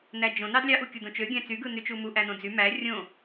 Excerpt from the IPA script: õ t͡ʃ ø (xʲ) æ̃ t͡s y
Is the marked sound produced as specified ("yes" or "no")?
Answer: no